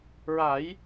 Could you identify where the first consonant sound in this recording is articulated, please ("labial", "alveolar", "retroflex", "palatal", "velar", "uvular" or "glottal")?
alveolar